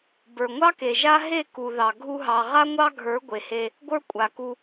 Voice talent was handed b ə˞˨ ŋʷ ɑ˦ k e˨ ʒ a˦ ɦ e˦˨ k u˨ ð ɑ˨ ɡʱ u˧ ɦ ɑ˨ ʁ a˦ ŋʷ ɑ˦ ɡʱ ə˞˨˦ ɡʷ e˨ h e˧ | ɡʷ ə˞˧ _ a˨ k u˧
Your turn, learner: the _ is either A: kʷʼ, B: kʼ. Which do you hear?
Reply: A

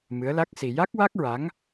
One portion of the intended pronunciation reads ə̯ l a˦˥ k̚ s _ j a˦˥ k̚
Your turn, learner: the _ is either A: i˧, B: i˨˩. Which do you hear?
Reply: A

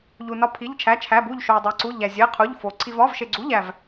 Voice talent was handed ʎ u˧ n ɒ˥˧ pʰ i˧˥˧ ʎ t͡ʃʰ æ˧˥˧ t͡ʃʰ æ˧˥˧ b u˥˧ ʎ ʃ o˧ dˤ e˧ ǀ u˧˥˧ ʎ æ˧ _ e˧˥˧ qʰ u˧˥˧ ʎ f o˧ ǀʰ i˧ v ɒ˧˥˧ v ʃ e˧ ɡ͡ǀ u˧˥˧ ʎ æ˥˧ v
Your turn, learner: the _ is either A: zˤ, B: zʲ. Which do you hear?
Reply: B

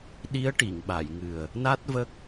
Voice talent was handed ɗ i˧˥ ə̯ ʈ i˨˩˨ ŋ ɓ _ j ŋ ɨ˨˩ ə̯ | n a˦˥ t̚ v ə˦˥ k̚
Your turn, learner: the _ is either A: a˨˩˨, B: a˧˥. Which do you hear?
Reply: A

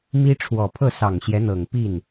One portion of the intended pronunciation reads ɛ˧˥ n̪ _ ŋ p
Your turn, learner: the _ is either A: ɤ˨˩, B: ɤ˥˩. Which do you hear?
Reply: A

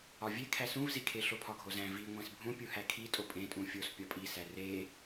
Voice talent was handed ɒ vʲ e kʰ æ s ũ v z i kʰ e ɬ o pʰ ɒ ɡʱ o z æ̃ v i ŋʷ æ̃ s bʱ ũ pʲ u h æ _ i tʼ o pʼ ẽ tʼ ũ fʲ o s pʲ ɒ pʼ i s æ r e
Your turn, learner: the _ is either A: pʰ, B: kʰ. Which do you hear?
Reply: B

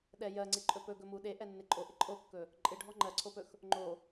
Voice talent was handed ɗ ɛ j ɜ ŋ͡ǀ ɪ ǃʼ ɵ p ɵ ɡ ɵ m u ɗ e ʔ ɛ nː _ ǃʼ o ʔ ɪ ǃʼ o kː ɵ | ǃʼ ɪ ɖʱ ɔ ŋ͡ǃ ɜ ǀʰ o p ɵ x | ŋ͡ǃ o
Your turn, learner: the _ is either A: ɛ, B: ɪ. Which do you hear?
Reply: B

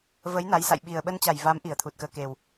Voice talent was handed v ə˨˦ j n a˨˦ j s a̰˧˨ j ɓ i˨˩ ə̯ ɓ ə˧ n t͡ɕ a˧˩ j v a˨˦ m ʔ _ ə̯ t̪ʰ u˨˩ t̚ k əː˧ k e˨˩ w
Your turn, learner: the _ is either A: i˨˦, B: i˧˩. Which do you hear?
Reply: B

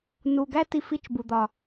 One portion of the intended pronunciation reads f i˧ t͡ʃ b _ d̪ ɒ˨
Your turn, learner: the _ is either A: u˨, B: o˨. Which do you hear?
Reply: A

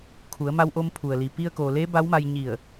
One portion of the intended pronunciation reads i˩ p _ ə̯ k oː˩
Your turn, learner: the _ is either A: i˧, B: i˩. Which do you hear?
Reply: A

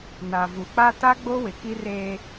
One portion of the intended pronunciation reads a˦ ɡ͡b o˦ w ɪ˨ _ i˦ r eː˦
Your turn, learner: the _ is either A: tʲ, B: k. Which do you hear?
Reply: B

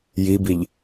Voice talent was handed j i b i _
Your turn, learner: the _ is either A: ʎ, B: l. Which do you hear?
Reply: A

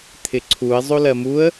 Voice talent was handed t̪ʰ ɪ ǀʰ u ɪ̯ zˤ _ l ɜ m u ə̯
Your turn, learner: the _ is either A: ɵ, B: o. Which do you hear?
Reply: B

